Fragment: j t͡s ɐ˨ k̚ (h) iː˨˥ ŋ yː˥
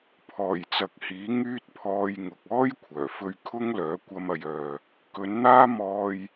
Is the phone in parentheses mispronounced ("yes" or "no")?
no